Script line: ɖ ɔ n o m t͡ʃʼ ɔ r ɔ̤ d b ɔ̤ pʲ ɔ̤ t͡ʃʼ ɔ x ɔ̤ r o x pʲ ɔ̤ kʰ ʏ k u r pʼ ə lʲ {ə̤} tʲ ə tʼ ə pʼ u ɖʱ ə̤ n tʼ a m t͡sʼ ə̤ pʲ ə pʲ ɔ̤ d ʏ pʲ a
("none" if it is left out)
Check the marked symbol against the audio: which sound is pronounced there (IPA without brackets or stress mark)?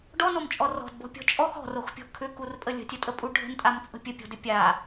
ə̤